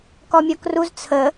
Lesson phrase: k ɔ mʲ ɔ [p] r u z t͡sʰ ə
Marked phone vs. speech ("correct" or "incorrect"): incorrect